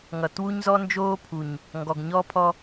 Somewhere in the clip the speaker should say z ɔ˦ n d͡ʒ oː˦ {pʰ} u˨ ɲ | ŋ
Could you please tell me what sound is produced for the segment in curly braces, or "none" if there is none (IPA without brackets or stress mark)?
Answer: pʰ